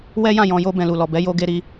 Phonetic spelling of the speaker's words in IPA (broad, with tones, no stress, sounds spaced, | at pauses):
w ɛ˦ j ã˦˨ j ɔ̃˨ j o˧ b ɛ̃˨ l u˨ l ɔ˨ b ɛ˨˦ j o˧ ɡ e˧ ɾ i˧